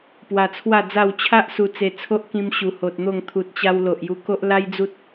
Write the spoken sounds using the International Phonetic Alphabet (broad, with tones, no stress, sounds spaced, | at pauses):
p w a˧ t͡sʰ w a˥˧ d͡z a˥˧ w t͡ɕʰ a˦ ʔ s u˧ t͡s e˧ t͡sʰ o˦ ʔ k ĩ˧ m ɕ u˨˩ h o˨ t̚ n̪ o˥˧ ŋ t̪ʰ u˨ t̚ t͡ɕ a˧ w l o˨ ʔ j u˧ k o˦ ʔ l a˦ j d͡z u˦ t̚